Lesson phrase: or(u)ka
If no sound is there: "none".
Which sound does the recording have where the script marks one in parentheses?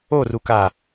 u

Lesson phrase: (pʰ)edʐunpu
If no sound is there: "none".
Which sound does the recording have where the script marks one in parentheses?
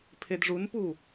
pʰ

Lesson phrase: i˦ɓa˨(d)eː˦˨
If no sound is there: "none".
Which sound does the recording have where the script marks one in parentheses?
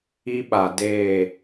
d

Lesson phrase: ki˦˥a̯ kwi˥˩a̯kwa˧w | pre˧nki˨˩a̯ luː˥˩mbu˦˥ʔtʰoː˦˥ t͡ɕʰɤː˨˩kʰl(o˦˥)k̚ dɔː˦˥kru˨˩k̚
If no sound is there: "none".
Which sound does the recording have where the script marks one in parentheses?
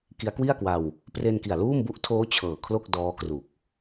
o˥˩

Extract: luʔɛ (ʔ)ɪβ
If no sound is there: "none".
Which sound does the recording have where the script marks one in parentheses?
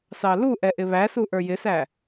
ʔ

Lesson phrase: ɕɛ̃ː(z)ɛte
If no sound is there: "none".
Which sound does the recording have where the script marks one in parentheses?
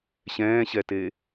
ɕ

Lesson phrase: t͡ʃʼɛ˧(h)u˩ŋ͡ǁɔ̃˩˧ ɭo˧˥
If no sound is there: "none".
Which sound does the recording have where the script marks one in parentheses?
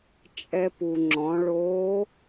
p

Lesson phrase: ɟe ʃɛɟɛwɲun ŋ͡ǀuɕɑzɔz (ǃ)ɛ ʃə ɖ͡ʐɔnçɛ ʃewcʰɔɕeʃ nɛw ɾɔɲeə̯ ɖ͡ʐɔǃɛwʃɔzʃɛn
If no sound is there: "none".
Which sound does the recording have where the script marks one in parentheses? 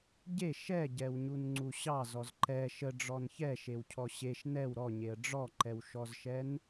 ǃ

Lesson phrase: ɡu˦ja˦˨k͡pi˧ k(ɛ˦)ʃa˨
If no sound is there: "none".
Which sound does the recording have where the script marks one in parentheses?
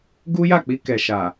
ɛ˨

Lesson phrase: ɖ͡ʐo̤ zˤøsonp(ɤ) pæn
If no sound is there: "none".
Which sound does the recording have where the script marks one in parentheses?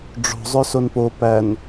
o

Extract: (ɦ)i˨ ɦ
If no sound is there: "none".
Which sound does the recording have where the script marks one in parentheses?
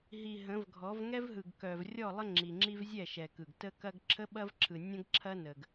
ɦ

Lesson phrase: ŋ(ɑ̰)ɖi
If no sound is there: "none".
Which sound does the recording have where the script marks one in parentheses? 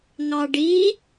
ɑ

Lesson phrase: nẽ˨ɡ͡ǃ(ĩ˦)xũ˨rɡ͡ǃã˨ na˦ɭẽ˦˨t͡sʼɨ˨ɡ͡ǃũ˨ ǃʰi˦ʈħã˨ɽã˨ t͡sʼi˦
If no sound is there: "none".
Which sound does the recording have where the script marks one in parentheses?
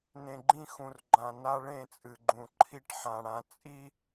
ĩ˦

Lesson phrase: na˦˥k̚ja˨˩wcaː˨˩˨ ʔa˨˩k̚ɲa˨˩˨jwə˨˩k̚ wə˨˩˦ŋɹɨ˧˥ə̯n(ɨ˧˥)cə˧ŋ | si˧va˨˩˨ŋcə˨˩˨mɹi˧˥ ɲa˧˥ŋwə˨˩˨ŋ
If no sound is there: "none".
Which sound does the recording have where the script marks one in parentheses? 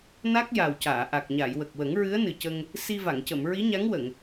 ɨ˨˩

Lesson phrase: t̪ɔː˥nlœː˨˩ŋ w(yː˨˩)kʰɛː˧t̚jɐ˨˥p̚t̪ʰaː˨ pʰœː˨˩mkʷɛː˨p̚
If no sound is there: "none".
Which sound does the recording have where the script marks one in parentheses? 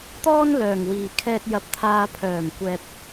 iː˨˩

